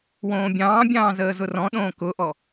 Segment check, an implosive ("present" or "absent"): present